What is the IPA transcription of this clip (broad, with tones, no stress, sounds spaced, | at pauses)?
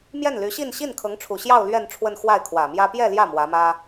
m j ɛ˥˩ n l y˧˥ ɕ i˥˧ n ɕ i˥˩ n kʰ ɤ˧˥ ŋ ʈ͡ʂʰ u˨˩ ɕ j ɑ˥˧ ʊ̯ l ɥ ɛ˥˧ n ʈ͡ʂʰ w ə˥˧ n x w a˥˩ ɪ̯ kʰ w ä˨˩ m j ä˥ p j ɛ˥˧ l j ä˥˩ m w ä˧˥ m ä˥